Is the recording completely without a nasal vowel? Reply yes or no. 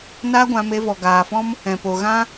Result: no